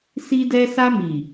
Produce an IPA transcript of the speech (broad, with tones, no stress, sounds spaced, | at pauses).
s i˧ d ɛ˧ s a˧ m i˨